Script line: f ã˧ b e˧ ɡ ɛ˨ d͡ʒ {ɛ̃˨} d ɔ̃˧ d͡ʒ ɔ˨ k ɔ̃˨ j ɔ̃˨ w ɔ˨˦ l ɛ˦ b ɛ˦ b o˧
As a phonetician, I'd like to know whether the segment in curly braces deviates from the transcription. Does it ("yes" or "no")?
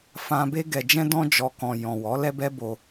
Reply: yes